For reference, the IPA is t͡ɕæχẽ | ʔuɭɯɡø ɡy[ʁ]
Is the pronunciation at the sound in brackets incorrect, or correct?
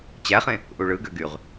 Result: correct